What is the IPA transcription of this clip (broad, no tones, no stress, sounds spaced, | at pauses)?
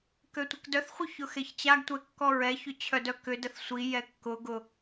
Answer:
k ø tʷ ɪ k d œ θ χʷ œ ç ʊ x e ç t͡ɕ a ɡ tʷ ɛ kː ɔ ɹ ɛ ç ʏ t͡ɕʰ œ d œ k ʏ d ə θ sʷ i j ɛ kː ʊ ɡ ʊ